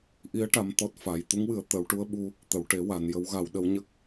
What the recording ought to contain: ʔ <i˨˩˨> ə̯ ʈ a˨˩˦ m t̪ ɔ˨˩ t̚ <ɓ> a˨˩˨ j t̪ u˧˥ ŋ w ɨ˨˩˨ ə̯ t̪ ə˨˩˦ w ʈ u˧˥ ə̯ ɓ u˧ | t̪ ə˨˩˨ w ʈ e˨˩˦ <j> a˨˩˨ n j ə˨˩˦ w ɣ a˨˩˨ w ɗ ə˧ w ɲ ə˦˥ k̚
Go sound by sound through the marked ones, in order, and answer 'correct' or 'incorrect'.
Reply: incorrect: i˧˥, incorrect: f, incorrect: w

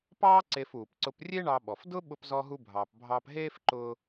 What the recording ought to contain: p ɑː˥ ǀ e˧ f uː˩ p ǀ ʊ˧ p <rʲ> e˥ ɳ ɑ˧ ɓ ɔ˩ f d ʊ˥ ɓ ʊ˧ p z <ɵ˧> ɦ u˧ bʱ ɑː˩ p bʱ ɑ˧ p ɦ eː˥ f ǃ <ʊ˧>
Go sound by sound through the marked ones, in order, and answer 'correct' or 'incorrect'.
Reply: correct, incorrect: ɔ˧, incorrect: ʊː˧

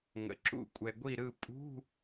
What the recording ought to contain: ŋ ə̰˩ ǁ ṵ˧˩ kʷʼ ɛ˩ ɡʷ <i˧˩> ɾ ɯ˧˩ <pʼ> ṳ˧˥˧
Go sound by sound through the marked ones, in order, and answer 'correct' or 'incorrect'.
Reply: correct, correct

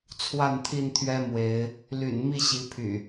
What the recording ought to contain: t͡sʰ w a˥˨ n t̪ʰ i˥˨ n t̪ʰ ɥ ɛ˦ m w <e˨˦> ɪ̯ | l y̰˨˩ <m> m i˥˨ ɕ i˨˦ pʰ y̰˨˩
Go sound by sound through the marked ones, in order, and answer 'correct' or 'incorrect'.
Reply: correct, incorrect: n

